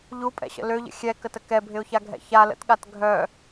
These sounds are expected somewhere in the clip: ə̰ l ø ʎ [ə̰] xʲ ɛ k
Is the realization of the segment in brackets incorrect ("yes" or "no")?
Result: no